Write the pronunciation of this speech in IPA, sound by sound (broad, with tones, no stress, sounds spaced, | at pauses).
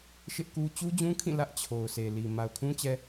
ʃ ɪ˦ ʔ k u˦ t͡ɕ u˦ d͡ʑ ũ˦ kʰ ĩ˦˨ l ä˦ ʔ t͡ɕʰ o˨ ʊ̯ sʰ e˨ l i˨ m a˨ ʊ̯ kʰ ũ˦ t͡ɕ ɛ˦